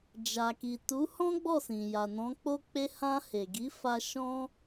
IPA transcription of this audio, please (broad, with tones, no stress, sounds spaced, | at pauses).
d͡ʒ a˨ k i˨ t u˨˦ h ɔ̃˦ ɡ͡b ɔ˦˨ s ĩ˨ j a˨ n ɔ̃˨˦ k͡p o˦ k͡p e˦ h ã˧ h e˨ ɡ i˨˦ f a˦ ʃ ɔ̃˦